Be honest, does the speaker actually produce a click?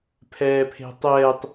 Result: no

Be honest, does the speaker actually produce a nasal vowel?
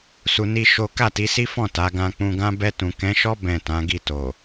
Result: yes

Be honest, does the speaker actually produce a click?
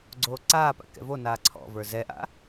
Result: yes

